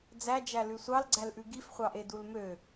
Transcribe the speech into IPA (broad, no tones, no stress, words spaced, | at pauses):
d͡zæd͡ʒæ lʉsʷɑlɡ͡ǀælʔʉ ɡifχʷɑʔe dulmø